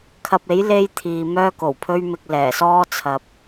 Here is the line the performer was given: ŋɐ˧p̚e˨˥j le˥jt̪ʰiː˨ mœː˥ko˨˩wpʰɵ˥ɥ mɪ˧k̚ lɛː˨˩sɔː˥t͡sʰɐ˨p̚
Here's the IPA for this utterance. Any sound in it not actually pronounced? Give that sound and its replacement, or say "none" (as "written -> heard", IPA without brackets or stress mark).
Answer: ŋ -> kʰ